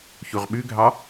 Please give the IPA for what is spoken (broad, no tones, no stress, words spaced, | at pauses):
çuʁɓʉɡʱɑ